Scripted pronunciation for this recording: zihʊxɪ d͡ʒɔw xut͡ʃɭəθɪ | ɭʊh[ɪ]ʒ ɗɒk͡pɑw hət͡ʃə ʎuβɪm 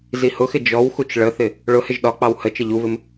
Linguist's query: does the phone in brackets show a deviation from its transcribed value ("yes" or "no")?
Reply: no